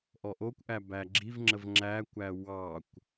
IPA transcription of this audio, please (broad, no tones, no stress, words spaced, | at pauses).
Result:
ʔɔʔokʷʔæ bæɡ͡ǁivŋ͡ǁəv ŋ͡ǁækʷæ wɑkʷ